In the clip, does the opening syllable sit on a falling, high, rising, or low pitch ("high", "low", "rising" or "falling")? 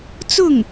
falling